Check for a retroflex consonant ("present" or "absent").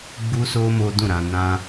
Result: absent